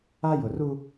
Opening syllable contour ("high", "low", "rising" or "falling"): high